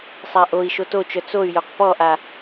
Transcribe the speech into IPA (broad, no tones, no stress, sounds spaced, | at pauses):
sˤ a ʔ o i̯ ʃ o t o t͡ʃ œ t͡s o y̯ j o q p ɔ ʔ a